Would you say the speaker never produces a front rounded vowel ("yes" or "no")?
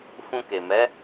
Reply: yes